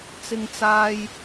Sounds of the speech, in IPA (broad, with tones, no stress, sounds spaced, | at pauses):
t͡s ɪ˧ ŋ t͡s aː˧ j